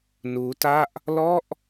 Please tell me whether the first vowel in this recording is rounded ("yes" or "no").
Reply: yes